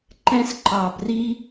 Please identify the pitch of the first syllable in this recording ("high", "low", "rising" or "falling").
high